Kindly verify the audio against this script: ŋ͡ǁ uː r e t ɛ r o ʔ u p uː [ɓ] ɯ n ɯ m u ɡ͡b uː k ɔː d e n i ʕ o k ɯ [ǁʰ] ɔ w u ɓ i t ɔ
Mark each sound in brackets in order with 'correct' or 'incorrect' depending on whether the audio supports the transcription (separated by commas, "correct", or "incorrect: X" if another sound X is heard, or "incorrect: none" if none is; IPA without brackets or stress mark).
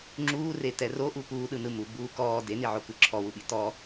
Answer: incorrect: ɗ, correct